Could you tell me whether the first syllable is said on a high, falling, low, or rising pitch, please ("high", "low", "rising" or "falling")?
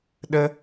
high